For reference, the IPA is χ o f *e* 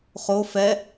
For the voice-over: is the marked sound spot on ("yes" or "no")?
no